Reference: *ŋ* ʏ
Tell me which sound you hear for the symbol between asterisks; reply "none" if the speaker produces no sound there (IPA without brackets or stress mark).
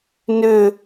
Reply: n